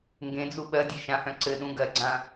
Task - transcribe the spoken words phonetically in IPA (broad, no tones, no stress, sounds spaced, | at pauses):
ŋ ɡ ẽ d͡z u ɓ ɜ dʲ e ʃ ã h œ̃ ǀ ɘ ɗ ũ ɡ ɜ ɡ͡ǀ ã